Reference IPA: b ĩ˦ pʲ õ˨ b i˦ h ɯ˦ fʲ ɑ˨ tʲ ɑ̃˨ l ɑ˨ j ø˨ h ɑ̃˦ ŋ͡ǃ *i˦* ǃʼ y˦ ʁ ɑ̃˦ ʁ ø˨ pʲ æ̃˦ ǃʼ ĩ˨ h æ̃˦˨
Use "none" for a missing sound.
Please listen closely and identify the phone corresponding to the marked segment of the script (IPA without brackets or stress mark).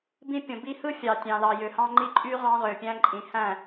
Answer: i˦